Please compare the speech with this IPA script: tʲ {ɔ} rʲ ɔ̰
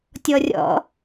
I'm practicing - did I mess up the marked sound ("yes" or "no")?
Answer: no